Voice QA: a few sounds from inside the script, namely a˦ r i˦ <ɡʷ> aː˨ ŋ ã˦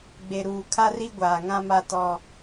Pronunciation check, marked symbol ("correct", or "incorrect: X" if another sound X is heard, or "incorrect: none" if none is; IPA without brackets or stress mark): correct